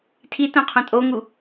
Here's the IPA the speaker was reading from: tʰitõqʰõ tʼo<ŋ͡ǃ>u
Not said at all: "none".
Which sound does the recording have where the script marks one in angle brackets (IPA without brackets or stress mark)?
ŋ